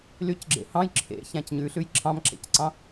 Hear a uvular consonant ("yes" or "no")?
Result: no